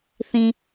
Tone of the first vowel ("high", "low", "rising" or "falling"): low